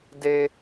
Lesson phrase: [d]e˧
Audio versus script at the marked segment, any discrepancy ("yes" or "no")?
no